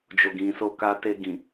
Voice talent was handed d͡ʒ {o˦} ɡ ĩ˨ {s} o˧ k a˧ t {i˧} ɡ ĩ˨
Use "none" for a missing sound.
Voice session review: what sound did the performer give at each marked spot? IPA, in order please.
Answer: o˨, s, e˧

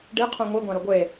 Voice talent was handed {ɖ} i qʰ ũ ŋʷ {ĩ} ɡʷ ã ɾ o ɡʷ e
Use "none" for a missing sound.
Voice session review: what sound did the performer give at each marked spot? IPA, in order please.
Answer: ɖ, i

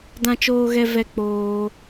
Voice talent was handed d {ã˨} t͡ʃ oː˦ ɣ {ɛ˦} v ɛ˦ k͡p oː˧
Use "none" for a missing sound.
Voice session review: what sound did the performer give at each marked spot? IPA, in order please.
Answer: ã˦, ɛ˦

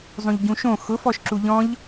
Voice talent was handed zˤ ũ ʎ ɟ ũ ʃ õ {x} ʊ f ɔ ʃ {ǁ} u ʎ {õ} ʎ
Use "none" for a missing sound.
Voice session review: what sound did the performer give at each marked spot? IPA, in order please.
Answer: x, ǁ, ɔ̃

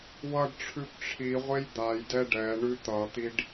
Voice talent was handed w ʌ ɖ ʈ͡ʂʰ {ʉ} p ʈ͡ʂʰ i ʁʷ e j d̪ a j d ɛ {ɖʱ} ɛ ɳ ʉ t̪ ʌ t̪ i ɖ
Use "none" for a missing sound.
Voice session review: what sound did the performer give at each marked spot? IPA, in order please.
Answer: ʉ, ɖ

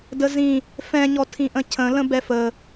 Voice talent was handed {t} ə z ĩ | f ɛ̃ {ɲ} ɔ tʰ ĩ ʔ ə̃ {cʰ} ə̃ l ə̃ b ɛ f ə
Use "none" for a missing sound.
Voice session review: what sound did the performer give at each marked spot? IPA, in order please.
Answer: d, ɲ, cʰ

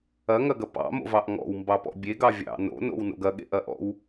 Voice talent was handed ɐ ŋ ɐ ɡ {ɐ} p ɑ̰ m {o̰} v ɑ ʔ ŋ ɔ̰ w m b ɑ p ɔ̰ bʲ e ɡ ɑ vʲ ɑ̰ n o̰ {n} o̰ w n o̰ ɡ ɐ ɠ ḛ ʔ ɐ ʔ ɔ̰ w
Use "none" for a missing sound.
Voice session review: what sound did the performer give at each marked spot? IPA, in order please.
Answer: ɐ, o̰, n

